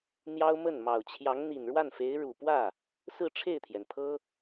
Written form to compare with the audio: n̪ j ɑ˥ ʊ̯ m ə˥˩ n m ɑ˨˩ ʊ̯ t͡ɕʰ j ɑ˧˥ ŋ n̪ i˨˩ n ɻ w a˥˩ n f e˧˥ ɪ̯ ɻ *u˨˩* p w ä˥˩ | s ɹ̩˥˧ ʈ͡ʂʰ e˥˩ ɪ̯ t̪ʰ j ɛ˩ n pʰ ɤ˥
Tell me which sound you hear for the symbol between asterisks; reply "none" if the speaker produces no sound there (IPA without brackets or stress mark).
u˨˩